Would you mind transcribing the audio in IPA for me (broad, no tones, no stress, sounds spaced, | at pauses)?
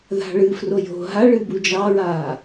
ð a̤ ɭ ɨ f r o j o̤ ɦ a ɭ ɨ b u d͡ʒ ɑ ɹ aː